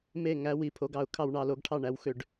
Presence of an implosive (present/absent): absent